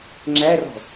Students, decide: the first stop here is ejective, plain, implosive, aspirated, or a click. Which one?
click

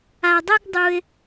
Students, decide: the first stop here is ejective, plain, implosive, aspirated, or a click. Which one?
plain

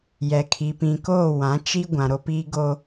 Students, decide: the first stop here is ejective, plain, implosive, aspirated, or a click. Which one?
aspirated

